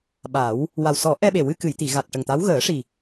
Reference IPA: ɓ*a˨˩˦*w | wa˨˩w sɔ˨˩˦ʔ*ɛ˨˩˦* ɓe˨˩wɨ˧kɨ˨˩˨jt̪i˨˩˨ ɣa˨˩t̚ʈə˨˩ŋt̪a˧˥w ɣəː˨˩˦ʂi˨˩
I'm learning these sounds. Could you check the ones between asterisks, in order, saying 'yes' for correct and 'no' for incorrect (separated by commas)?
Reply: yes, no